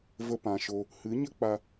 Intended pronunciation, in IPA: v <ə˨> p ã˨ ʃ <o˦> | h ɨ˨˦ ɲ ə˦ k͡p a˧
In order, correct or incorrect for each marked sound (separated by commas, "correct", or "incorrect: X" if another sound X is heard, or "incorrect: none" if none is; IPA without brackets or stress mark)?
incorrect: ə˧, incorrect: o˧